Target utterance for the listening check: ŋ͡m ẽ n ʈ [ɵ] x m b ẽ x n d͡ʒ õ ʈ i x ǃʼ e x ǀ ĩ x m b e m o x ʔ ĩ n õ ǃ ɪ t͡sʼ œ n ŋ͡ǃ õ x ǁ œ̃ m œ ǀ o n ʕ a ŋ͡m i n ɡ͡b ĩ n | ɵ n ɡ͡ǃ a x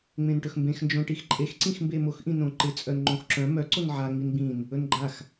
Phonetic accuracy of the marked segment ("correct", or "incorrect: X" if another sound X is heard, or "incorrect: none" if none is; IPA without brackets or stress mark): correct